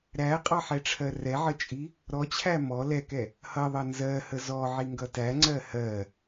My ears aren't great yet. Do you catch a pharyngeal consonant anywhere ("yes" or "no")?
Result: yes